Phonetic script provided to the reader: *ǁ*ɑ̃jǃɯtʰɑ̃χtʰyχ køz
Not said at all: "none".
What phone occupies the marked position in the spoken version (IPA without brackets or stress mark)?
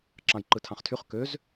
ǁ